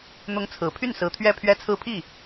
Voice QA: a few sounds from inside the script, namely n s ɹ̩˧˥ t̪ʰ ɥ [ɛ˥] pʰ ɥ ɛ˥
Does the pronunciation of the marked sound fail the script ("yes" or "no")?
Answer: yes